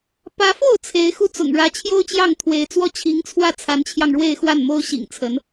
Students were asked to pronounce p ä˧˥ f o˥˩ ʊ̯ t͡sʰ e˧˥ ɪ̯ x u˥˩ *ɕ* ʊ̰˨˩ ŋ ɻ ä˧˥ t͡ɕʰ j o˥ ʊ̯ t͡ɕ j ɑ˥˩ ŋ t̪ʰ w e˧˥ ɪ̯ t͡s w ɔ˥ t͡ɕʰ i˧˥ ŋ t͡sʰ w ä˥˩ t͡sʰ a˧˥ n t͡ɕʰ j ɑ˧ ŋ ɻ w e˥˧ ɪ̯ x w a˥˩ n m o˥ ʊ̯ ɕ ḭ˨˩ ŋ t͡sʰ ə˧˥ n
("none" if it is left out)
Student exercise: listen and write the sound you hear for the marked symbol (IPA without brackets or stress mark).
t͡s